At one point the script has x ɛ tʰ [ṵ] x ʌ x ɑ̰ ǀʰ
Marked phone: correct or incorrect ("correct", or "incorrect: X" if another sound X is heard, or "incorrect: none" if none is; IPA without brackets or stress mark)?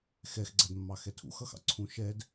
correct